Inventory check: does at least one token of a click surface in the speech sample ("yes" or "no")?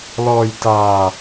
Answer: no